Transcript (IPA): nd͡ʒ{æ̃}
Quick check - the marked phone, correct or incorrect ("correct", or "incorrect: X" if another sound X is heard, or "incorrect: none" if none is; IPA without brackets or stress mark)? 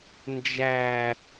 incorrect: æ